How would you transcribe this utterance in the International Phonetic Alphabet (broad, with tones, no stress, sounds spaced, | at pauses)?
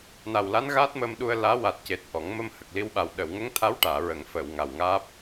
n a˨˩ w l a˧˥ n ɣ a˦˥ t̚ m ə˧ m ɗ u˧ ə̯ l aː˧˥ w a˨˩ t̚ c e˨˩ t̚ ʔ ɔ˨˩˦ ŋ m ə˧ m h ə˨˩ k̚ l i˧ w ɓ a˨˩ w ɗ əː˨˩˨ w ŋ ə˧˥ ŋ t̪ʰ a˧˥ w ʈ aː˨˩˨ ɹ ə˨˩˨ ŋ f ə˨˩˨ w ŋ a˨˩ w ŋ aː˦˥ p̚